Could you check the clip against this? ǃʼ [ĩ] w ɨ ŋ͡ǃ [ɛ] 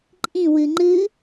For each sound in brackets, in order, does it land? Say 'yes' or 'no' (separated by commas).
yes, no